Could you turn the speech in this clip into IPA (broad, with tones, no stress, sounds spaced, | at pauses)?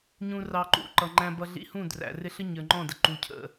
ɲ ũ˧ r ɑ˧ ǃ ṵ˦˨ ǃ ʌ˨ ŋ͡ǃ æ̃˧ b ʌ˧ ɮ ḭ˧ h ũ˦˨ d r æ̰˨ r ɪ˧ ɬ ə˦ ɲ ə˞˨ ŋ͡ǃ ɔ̃˦˨ d ə˨ ǃ u˨ cʰ ə̰˨